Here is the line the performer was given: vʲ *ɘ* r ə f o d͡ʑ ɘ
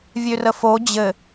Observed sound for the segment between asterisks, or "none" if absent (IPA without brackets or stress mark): ø